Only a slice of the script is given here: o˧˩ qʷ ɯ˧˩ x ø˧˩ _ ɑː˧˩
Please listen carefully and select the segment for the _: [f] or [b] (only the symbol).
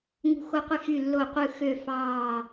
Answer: f